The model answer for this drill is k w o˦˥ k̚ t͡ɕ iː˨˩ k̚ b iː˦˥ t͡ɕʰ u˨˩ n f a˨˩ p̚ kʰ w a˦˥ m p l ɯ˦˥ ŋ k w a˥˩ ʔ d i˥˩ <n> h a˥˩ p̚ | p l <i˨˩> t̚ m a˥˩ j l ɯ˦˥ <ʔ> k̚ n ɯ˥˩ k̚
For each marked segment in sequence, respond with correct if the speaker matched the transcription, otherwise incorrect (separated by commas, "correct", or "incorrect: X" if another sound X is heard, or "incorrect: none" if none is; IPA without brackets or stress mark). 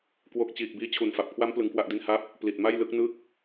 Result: correct, correct, incorrect: none